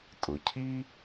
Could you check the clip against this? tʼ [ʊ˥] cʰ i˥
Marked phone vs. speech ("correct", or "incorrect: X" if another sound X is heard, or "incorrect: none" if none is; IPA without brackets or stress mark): incorrect: ʊ˩